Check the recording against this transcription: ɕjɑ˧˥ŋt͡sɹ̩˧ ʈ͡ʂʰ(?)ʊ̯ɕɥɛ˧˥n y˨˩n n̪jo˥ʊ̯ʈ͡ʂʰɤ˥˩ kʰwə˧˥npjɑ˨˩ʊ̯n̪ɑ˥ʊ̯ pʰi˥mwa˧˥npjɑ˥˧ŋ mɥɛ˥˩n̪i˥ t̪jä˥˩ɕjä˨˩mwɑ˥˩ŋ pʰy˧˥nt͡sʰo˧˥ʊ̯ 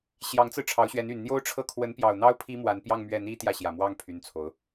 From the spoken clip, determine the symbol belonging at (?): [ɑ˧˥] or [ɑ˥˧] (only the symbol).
ɑ˧˥